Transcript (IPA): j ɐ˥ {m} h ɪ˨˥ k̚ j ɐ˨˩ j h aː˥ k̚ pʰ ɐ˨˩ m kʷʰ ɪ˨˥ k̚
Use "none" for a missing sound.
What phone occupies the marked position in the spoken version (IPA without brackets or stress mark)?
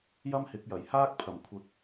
m